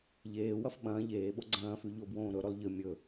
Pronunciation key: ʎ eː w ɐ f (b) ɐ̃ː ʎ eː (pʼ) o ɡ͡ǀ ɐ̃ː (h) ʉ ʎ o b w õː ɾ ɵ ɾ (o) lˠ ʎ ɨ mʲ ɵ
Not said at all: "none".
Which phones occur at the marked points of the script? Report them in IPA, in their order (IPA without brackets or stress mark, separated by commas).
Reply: ɓ, ɓ, f, ɵ